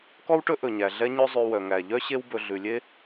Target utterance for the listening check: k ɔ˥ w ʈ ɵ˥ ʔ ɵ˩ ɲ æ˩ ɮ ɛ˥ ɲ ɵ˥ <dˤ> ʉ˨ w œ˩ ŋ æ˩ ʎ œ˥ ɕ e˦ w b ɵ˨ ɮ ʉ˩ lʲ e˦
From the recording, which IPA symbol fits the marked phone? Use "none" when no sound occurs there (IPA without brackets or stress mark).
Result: zˤ